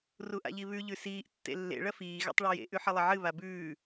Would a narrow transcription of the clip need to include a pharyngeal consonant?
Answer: yes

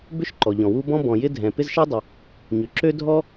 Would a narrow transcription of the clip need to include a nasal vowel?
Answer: yes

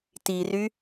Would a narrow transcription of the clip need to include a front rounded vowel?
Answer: yes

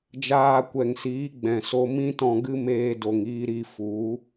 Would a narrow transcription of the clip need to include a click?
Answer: no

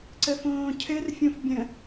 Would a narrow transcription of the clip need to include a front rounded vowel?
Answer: no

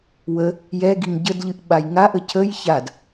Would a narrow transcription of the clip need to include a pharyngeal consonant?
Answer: no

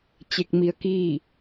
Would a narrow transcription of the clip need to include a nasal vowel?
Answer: no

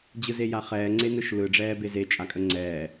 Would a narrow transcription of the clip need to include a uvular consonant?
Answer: yes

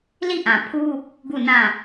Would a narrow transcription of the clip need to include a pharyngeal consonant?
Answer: no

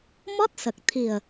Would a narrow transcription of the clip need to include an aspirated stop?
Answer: yes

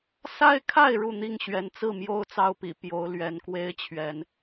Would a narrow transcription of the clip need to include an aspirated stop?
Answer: yes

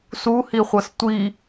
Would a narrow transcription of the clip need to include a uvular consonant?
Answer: yes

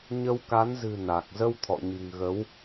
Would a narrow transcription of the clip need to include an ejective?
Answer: no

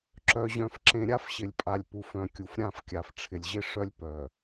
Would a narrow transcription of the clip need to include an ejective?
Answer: yes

